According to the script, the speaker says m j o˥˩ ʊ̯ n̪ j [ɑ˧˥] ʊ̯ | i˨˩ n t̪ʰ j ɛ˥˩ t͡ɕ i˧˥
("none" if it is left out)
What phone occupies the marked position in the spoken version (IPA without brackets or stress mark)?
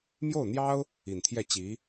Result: ɑ˥